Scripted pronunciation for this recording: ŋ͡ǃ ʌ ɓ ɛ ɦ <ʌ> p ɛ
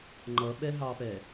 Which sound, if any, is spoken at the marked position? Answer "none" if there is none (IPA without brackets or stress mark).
ɑ